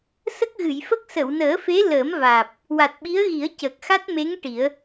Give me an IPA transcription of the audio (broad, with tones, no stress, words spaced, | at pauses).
sə˦˥k̚ɣɨ˨˩˨jfə˦˥k̚ sə˨˩˨wnəː˨˩˦fe˧˥ ləː˨˩˦mvaː˨˩p̚ | wa˨˩t̚ɓi˧˥ə̯ɣi˨˩˦ə̯ cəː˨˩k̚xa˦˥t̚me˧˥ŋ ʈi˨˩˦ə̯